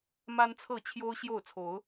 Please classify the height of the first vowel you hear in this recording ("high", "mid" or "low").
low